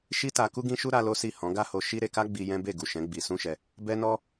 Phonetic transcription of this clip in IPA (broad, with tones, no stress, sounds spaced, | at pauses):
ʃ i˦ t a˧ k u˦ ɡ ĩ˦ ʃ u˦ ɾ a˦ l o˦ s i˦˨ h ɔ̃˨˦ ɡ a˦ h o˧ ʃ i˦ ɾ e˧ k a˦ ɡ͡b i˧ j ɛ̃˦ b e˦˨ ɡ u˨ ʃ ɛ̃˨˦ ɡ͡b i˧ s ũ˦ ʃ ɛ˧ | b ɛ˦ n ɔ˦